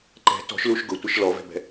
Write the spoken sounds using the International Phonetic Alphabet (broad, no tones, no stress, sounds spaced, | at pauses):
ǃ ɛ̤ t ɔ̤ ʃ l u ʃ ɡ ʊ tʷ ɪ ʃ l ɔ v ɛ̤ b ɛ̤